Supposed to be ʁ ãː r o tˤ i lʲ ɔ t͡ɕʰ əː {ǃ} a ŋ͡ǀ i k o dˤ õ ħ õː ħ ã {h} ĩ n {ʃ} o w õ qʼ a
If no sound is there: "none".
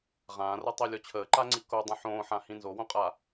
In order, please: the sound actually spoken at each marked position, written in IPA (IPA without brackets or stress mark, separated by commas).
ǃ, h, z